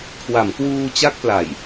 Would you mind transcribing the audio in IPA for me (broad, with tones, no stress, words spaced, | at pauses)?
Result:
kʰwa˩˦mkwuː˧ t͡ɕa˥˩k̚pla˨˩j